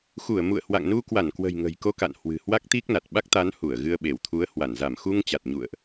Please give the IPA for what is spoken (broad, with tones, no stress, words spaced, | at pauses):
xu˧˩ə̯mṵ˧˨ə̯hwa̰˧˨ŋnu˧ kwa˧˩nkwə̤˨˩j ŋə̤˨˩jko˧ka̰˧˨n hwɨ̤˨˩ hwa˦˥k̚t̪i˦˥k̚na˨˩t̚ ɓa˦˥k̚t̪a˨˦nhu˧˩ə̯ ɣɨ˧ə̯ɓe˧˩wt̪ʰu˨˦ə̯hwa˧˩n za˧˩mxu˧ŋ t͡ɕa˨˩t̚ɲṵ˧˨ə̯ʔ